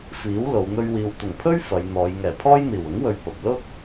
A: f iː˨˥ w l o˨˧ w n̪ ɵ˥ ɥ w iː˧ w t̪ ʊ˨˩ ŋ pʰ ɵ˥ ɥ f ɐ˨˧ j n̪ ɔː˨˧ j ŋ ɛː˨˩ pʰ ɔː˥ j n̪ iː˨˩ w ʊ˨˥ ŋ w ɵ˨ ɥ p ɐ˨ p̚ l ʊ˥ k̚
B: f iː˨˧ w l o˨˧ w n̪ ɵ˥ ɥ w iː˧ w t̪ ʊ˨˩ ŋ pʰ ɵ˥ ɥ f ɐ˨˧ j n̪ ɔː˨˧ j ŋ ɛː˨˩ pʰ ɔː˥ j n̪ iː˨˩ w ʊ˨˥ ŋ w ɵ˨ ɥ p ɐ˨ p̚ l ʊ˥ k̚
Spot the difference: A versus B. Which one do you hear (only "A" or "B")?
A